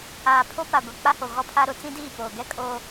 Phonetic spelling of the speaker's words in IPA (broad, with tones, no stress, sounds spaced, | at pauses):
aː˨ pʰ o˦ p a˨ ɡʷ i˨ k͡p a˦ h o˨ ɣ ɔ˦ pʰ a˦ ɾ ʊ˨˦ t͡s ĩ˦ d iː˦˨ p oː˨ ɡ ɛ˦ kʼ oː˦